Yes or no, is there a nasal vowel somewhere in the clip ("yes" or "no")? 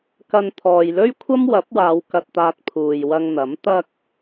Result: no